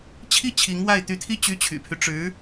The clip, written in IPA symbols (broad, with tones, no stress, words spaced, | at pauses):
t͡ɕʰi˥˩ t͡ɕʰi˧˥ŋwa˥˩ɪ̯ t̪y˧˥t̪ʰi˥˩ t͡ɕy˥t͡ɕʰy̰˨˩pʰy˦ ʈ͡ʂɻ̩˧˥